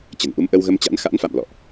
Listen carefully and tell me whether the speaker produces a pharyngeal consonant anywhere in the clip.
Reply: no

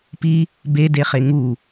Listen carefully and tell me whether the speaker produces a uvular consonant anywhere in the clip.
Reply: yes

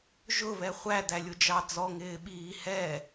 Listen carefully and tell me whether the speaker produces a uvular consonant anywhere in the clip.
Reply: yes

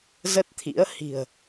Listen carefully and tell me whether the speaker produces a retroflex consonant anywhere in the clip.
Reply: no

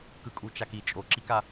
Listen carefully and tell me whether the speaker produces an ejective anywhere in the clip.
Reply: yes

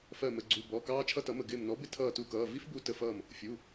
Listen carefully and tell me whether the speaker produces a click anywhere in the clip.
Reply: yes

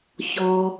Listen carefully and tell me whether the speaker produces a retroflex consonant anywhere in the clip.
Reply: no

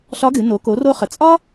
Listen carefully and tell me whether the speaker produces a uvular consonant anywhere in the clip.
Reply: yes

